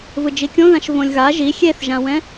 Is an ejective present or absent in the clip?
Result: absent